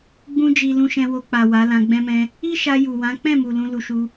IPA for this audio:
ɡ͡b ũ˧ d͡ʒ i˨ l ũ˧ ʃ ɛ̃˧ w o˧ k͡p a˨ w a˨˦ l ã˧ ɡ͡b ɛ̃˦ m ɛ̃˦ | i˦ ʃ a˧ j u˨ w ã˨˦ k͡p ɛ̃˦˨ m u˨ l ũ˧ l u˧ ʃ u˧

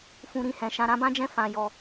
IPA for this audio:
f ũ˦ ɾ ĩ˧ h ɛ̃˧ ʃ ã˧ ɾ ã˦ b ã˦ d͡ʒ ɛ̃˦˨ f ã˧ j ɔ˧

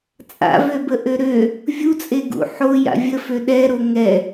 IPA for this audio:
t͡sʼ a̰ v ø b ə ʔ ø ɾ ø | vʲ u t͡sʼ e ɡ ṵ ħ o j a̰ vʲ ə f ø ɗ ɛ ɾ o ŋ ɛ

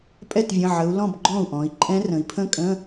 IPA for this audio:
pʼ ɛ˥˩ t vʲ ə̃˩˧˩ ʕ ə˩˧ u̯ l ɔ̃˥˩ b ɡ͡ǃ ɔ̃˥˩ u̯ ʔ ɔ̃˩˧ i̯ ǃʼ ɛ̃˦˥ r ə̃˩˧ i̯ pʰ ə̃˥˧ kʼ ə̃˧˥˧

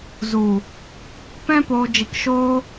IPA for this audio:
z u˨ | p ɛ̃˦ p oː˧ d͡ʒ i˧ k ʃ oː˦

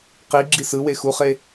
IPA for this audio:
q i ɡ͡ǁ i s ɯ w e x u χ e

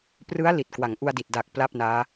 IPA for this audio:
p r ɯ˦˥ a̯ l i˨˩ t̚ k w a˩˦ ŋ ʔ u˧ a̯ d i˨˩ t̚ d a˨˩ k̚ p l a˥˩ p̚ n aː˦˥

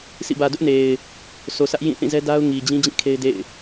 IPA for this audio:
s ḭ˦˨ b ä˨ d ʊ˦ ʔ n e˨ ɪ̯ | s o˨ sʰ ä˦ ʔ j ĩ˦˨ θ ĩ˦˨ z ɛ˦ d a˦ ʊ̯ ŋ i˨ d͡ʑ ĩ˦ d͡ʑ ĩ˦˨ kʰ e˦ ɪ̯ d ḛ˦˨ ɪ̯

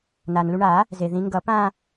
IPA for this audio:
n a˩ n l u˧ ɳ aː˨˩˦ | z e˩ ð ĩ˨˩˦ ŋ ɡ ʌ˨˩˦ p ãː˥˧

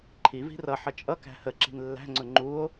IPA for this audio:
ǃʰ i v i̤ r ʌ ħ ʌ t͡ʃʼ ʌ k æ̤ h ə ǁ i̤ n lː æ̤ ŋ͡ǀ ʊ ŋ͡ǃ u o̯

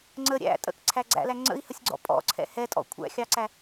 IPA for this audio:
ŋ͡ǀ ə ɾʲ æ̰ tʼ ə̰ k ǀʰ æ ɡ͡ǀ æ̰ l æ ŋ͡ǀ ə̰ i̯ h ə sʲ ɡ͡ǀ ɔ̰ pʼ ɔ̰ ǀʰ ɛ̰ h ɛ tʼ ɔ̰ kʷʰ æ̰ xʲ ɑ ǀ æ

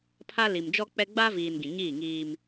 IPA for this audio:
pʰ a˦ l i˨ m d͡ʒ ɔ˦ k͡p ɛ˦ ɡ͡b a˦ v iː˨ n ɡ ĩ˨ ɲ iː˦˨ ŋ iː˦ m

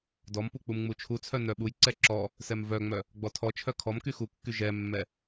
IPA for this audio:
d ɔ m p u k͡p u m ŋ͡m u t͡ʃʰ u t͡sʰ œ n œ ɓ u j ǀ ɛ ǁ ɔ | s ɛ m v œ ŋ͡m œ | ɡ͡b ɔ tʰ ɔ t͡ʃʰ œ kʰ ɔ m k y x u kː y ʒ ɛ mː ɛ

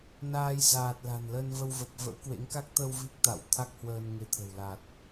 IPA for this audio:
n aː˧ j z aː˨˩ t̚ l a̤˨˩ n l ə˧ n v ə˧ w v ə˨˩ p̚ v ə̰˧˥ w k w ḛ˧˥ ŋ k a˦˥ k̚ t̪ ə˧ w v i˦˥ k̚ t̪ a̰˧˨ w t̪ʰ a˦˥ k̚ h w əː˧ n ŋ e˨˦ t̪ʰ ə̤˨˩ w l a˨˩ t̚

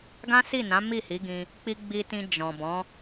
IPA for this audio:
ɡ ã˦ s i˦˨ n ã˨˦ m i˦˨ h i˨˦ ɡ ĩ˧ | k͡p i˦ ɡ͡b i˧ t ĩ˧ d͡ʒ ɔ̃˨ b ɔ̃˨˦

